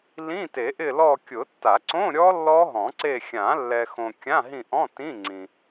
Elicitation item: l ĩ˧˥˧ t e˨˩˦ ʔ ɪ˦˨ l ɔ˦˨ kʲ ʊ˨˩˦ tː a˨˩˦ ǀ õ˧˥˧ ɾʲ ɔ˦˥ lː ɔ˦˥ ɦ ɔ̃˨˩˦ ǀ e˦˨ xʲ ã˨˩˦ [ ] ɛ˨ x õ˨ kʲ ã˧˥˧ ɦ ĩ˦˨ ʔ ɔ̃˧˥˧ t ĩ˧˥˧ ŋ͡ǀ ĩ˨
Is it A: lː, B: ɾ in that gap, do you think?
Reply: A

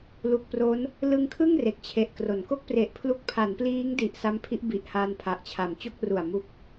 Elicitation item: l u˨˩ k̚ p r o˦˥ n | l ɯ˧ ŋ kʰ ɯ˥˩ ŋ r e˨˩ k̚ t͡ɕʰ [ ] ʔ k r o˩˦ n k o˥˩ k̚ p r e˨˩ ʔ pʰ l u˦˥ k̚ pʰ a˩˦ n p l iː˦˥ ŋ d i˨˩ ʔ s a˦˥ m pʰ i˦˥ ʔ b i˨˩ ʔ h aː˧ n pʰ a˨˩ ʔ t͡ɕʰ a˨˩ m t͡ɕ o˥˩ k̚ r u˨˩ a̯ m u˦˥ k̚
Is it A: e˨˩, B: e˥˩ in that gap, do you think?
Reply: A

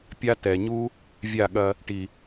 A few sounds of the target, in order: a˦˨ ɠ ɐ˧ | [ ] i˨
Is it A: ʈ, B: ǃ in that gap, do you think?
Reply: A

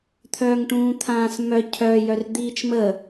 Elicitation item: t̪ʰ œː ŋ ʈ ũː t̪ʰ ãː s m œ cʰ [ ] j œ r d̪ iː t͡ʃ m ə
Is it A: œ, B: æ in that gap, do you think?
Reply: A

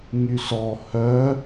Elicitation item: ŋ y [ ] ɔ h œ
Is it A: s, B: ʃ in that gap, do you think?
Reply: A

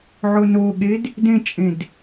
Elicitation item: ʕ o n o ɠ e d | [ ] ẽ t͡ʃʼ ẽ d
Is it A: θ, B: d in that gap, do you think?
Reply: B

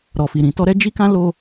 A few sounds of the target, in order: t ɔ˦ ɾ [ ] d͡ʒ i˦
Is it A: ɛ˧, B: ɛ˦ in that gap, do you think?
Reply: B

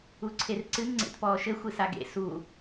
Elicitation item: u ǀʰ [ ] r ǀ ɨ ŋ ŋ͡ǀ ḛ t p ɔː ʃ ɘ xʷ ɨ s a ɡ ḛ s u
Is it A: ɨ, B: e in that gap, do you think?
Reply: B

